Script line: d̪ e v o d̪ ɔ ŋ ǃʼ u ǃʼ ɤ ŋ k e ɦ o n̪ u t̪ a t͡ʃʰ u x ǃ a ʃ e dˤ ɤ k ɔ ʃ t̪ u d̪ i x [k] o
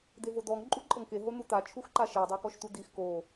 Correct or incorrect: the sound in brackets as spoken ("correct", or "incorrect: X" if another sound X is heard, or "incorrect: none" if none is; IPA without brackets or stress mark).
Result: correct